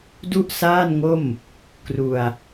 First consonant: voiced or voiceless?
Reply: voiced